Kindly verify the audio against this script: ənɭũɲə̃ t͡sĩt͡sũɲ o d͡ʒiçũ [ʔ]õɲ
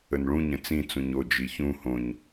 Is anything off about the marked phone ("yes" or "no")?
yes